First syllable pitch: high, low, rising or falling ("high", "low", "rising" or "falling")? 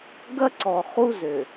high